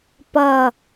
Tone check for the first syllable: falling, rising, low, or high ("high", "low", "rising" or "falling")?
falling